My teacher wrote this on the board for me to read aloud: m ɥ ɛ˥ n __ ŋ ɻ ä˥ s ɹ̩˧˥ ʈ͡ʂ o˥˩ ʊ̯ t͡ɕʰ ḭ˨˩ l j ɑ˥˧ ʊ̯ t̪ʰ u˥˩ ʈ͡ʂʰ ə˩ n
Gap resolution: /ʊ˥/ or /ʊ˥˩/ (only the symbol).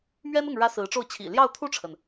ʊ˥˩